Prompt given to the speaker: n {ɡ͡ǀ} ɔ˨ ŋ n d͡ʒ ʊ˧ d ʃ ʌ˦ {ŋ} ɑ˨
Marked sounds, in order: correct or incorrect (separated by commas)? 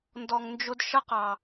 incorrect, incorrect